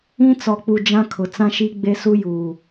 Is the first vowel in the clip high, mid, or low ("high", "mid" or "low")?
high